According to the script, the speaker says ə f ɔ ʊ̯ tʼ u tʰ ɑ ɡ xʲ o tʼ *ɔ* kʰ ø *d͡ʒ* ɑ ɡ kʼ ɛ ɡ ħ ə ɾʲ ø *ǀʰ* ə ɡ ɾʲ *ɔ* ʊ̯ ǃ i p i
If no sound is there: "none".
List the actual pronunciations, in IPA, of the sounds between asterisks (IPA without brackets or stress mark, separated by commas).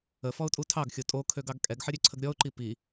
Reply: o, ɡ, ǀʰ, ɔ